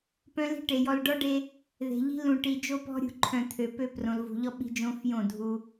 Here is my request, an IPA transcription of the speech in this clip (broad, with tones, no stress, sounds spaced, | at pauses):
p œ̃˦ l i̤˦ ʈ e˨ j ɔ˨ l ɖ ɔ˦ ɖ e˦ | ð e̤˨ ʎ i̤˦ l ũ˨ ʈ i˨ d͡ʒ o˦ p ɔ̤˦ ɾʲ ṳ˨ ǃʰ œ̃˨ t̪ʰ ø˨ p ø˦ p r õ˨ l v ṳ˨ ʎ ɔ˦ ɓ i̤˦ d͡ʒ õ˦ f j õ˦˨ dʱ u˦